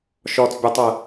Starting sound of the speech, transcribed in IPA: ʃ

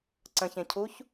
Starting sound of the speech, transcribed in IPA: ǀ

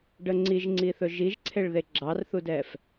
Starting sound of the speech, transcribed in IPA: ɖ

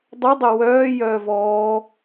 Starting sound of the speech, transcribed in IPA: dˤ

